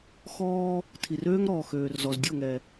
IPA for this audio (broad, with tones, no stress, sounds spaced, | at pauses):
x ɔː˦ | tʰ i˨ r øː˦ ŋ ɾ ɔː˨ x øː˨ r z ɔ˨ z dʲ o˦˨ ŋ ɛ˨